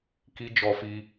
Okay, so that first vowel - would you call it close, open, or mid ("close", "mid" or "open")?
close